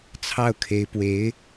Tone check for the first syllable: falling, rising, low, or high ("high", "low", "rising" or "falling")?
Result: falling